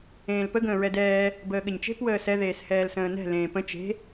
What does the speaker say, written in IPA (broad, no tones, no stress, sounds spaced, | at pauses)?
ẽː l p ə ɡ ə̃ː ɹ ɛ d ɛː | b əː ɠ ɘ ɲ t͡ʃ e̤ p w əː s ɛ ð eː s h ɛː l s ə̃ː n ɛ̤ l ẽː p ə̃ t͡ʃ e̤